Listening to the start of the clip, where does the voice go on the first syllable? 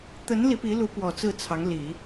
rising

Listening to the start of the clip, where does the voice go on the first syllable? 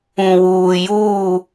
low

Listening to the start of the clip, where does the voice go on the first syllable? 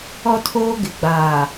high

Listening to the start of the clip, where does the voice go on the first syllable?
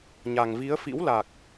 low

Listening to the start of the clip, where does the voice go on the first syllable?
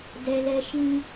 high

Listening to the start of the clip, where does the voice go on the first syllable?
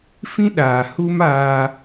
high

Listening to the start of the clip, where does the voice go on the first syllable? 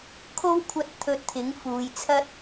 high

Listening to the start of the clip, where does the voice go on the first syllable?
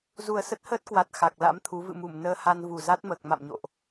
low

